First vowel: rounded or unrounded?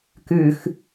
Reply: rounded